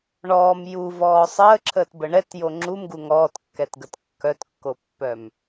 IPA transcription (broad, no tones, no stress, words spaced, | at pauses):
ɳɔːm juvɔː sˤəːǁʰəːtbə ɳɛtjo ŋ͡ǁumɡu ŋɔːtkːɛtɡət kːœtkːopːœm